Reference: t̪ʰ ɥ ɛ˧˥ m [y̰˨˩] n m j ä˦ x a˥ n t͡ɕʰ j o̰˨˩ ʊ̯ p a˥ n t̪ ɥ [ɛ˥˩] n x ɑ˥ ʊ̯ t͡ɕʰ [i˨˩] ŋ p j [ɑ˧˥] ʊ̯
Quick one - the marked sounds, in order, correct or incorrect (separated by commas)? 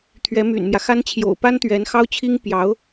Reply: correct, incorrect, incorrect, correct